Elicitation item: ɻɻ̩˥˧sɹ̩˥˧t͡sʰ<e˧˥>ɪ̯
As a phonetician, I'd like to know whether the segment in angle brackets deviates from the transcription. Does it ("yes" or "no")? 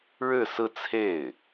yes